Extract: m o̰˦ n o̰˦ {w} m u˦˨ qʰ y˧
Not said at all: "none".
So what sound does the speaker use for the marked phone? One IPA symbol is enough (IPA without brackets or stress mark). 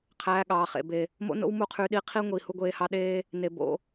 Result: w